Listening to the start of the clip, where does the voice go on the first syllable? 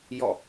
falling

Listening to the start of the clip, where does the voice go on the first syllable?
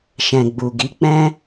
low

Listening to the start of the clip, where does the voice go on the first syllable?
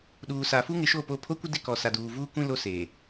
low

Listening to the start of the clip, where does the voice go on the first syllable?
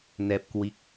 low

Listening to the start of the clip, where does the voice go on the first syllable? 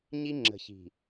high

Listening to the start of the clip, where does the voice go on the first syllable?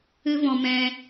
high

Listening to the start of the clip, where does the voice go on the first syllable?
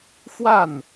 falling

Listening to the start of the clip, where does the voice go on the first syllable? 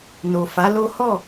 low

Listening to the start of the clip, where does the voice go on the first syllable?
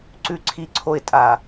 high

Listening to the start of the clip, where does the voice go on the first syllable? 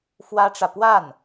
high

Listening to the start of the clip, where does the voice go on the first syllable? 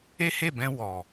high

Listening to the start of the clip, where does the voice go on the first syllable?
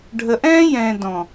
low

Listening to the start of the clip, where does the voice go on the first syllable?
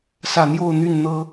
low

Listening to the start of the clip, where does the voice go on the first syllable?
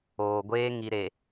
low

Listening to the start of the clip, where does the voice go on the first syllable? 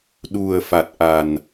low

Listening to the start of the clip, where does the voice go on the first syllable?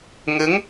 rising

